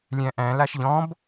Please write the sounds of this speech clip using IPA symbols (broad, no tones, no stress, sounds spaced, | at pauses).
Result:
lʲ æ̃ ʔ æ̃ l a ʃ ʎ ɔ̃ b